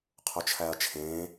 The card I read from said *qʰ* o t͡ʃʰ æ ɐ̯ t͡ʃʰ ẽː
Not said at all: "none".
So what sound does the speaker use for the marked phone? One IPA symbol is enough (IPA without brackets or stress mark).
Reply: qʰ